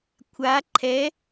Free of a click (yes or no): no